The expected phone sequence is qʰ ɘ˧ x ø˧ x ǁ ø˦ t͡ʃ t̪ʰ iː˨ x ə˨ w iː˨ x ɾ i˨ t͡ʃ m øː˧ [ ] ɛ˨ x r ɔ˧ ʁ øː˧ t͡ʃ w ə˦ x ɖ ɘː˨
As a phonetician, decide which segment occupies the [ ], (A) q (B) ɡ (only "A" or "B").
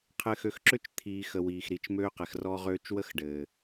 A